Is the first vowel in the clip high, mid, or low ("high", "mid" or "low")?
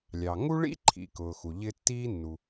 low